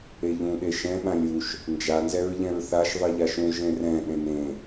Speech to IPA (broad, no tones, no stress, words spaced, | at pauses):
eʎũɗe ʃɛ̃ɓãlʲ uʃ | nd͡ʒanzɛɹʎɛ̃ɹ θaʃ ðˤɨʎaʃũʒ ẽrɛ̃ ɗẽnẽ